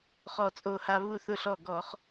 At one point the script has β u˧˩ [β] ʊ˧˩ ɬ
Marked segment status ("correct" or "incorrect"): incorrect